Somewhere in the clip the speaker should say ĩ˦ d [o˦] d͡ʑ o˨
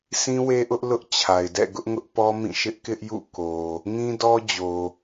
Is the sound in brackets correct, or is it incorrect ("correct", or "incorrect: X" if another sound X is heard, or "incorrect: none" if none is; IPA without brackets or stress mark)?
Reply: incorrect: ɔ˦